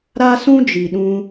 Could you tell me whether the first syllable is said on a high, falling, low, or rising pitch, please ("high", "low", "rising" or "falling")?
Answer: high